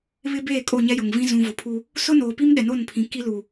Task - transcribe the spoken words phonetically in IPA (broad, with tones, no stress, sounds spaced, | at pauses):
β ɪ˦ b eː˦˨ kʼ o˦˨ ɲ ɛ˦ j ʊ˨ ŋ v ĩ˦ z ũ˨ v ʊ˨ pʰ u˦ | s ʊ˦ n oː˨ p i˦ m ɗ ɛ˨ n o˦˨ n pʰ ĩ˨ k i˦ l u˨